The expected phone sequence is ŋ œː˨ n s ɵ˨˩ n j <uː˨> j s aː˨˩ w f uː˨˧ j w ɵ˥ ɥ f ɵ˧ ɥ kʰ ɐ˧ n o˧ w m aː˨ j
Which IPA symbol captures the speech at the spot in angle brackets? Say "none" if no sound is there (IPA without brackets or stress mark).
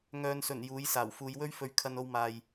uː˨˥